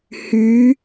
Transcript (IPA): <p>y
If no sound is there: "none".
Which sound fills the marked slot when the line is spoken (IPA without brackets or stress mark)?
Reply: h